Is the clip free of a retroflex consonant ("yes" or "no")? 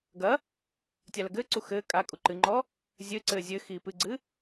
yes